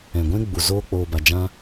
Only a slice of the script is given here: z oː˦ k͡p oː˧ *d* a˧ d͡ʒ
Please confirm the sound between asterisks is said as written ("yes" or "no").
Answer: no